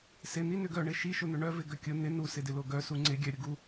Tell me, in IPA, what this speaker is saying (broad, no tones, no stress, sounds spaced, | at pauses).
s ɪ n̪ i n ʏ ɡ œ ɳ ɪ ʃ i ʃ ʊ n̪ ʏ ɳ œ v ɪ ɡ œ kʲ ʊ n̪ ɪ n u s ɪ d ɪ l o ɡ œ s u ŋ͡ǀ ɪ ɡʲ œ ɾʲ ʊ ɡ u